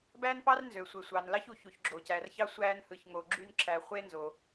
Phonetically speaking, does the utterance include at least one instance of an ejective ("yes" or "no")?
no